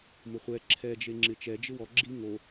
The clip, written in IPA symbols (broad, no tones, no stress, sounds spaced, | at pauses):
m ʊ χʷ ɛ ǁʰ ɛ d͡ʒ e ŋ͡ǁ ɪ t͡ʃ ɛ d͡ʒ ɪ w ɔ ɡ͡ǁ i ŋ o